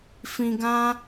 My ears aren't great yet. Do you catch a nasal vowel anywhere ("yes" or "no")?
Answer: yes